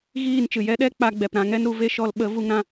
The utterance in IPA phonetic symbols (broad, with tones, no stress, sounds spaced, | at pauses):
ɣ iː˦˨ n t͡ʃ ɨ˨ j ɛ˦ ɗ ɛ˦ k͡p a˧ ɡ͡b ɛ˨ p ɾ ã˧ ŋ ɛ˦ n ɾ u˨˦ v e˦ ʃ ɔ˧ l ɓ ə˨˦ v u˧ ŋ ɾ ã˧